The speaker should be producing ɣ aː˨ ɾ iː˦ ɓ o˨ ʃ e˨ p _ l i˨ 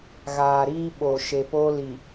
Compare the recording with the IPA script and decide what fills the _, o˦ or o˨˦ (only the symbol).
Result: o˦